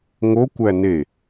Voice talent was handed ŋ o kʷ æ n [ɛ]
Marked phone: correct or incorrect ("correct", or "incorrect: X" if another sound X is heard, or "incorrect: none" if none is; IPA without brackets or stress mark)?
incorrect: e